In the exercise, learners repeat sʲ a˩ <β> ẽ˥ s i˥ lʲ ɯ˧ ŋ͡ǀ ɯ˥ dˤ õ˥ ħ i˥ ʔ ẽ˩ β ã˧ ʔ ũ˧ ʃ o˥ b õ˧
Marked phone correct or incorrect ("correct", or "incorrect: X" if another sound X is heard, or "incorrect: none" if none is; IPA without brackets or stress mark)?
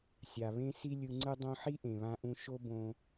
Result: correct